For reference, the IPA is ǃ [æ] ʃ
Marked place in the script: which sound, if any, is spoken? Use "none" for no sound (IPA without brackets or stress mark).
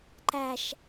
æ